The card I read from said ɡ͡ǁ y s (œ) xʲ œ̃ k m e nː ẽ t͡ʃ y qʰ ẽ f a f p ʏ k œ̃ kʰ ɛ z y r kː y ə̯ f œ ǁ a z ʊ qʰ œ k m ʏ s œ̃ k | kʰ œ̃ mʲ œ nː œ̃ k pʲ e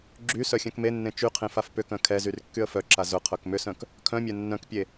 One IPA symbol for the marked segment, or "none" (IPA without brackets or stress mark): œ